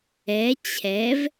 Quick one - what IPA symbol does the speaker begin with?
ɛ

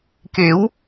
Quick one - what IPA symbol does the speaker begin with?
k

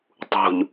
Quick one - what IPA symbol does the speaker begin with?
tˤ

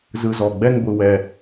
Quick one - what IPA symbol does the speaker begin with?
z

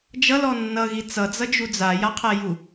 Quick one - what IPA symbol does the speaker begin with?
d͡ʒ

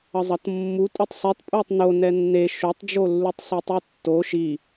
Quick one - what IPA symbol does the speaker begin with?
ʌ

